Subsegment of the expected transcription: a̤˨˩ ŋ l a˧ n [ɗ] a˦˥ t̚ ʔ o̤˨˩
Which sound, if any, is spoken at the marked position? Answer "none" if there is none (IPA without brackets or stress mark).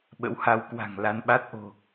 ɓ